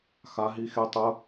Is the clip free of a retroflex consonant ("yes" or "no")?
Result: yes